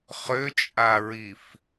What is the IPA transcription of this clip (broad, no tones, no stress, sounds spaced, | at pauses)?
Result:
χ ø t͡ʃʼ a ɹ i f